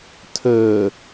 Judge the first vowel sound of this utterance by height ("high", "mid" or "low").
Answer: mid